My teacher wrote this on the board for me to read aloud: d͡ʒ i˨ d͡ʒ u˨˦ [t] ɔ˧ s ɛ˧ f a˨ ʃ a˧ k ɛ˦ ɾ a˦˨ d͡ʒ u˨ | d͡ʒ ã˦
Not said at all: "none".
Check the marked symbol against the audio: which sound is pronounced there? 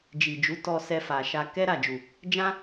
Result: t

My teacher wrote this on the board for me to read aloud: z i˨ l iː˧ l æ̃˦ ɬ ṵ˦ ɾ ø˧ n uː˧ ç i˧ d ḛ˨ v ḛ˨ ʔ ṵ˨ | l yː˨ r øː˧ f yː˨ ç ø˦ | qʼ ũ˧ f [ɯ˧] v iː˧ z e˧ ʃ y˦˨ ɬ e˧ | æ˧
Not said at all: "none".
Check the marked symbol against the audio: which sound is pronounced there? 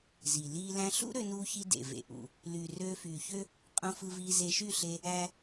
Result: ɯ˧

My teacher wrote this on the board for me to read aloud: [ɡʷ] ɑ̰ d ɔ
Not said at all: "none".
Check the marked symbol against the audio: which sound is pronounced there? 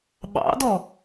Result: ɓ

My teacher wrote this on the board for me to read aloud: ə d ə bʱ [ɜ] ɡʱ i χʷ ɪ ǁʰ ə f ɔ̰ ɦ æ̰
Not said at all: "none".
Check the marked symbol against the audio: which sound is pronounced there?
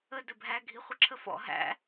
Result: æ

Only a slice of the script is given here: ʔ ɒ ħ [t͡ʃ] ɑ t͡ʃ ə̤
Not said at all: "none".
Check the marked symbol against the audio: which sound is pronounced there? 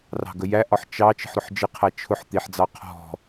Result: t͡ʃ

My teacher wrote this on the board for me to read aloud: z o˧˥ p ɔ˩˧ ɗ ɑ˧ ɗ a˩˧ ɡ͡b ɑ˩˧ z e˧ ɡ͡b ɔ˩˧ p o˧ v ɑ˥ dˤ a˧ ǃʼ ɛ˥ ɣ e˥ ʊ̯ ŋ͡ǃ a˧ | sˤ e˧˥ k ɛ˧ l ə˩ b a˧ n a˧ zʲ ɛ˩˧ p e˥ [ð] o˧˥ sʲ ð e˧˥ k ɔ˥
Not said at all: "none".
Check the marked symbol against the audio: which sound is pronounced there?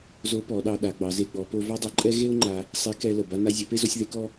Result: z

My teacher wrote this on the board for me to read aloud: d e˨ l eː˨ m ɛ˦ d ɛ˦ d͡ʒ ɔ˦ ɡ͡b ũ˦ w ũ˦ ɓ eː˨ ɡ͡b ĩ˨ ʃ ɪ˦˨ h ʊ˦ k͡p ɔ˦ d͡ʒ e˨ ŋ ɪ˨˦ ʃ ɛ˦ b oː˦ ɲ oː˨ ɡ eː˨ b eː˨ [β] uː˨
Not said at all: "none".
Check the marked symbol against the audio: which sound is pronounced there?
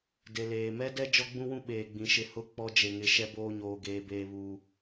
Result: β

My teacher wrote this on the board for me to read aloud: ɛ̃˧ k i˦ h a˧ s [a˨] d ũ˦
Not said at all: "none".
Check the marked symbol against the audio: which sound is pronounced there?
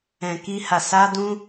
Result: a˦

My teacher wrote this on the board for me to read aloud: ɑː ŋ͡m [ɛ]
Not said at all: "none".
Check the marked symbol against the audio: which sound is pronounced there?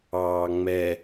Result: ɛ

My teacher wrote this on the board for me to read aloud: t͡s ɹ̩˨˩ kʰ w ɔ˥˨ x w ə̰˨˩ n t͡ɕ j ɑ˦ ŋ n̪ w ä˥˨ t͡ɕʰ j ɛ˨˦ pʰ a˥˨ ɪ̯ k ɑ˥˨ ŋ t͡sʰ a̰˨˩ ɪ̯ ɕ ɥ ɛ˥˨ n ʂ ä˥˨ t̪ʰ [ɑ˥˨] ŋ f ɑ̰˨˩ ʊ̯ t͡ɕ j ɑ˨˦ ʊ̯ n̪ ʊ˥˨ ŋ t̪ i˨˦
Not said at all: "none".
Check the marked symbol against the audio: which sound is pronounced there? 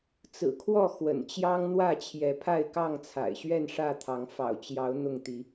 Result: ɑ˨˦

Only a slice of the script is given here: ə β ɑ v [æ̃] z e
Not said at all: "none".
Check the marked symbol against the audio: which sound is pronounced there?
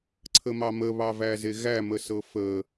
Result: æ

